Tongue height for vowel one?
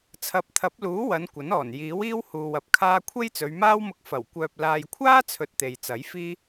low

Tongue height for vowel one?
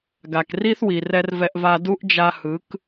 low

